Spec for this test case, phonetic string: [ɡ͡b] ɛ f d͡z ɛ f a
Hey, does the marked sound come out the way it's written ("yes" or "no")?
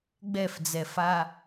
yes